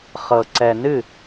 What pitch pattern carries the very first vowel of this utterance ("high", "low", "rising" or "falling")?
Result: low